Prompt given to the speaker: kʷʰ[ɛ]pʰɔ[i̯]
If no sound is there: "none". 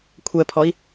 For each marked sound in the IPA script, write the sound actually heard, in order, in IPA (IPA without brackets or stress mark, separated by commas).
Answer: ɛ, i̯